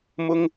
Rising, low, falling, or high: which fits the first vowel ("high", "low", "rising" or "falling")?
high